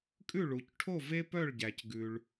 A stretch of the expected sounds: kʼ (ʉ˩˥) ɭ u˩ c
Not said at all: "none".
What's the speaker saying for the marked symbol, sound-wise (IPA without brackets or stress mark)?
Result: ʉ˥˩